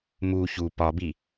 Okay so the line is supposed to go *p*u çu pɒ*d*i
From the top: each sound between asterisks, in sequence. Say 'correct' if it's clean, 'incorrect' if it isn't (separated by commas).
incorrect, incorrect